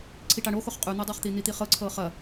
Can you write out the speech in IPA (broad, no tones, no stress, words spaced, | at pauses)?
ǀʰiʈaɳoxoχ qʼʉn̪adˤɑχt̪i n̪it̪iχɤ ǀʰɤχɐ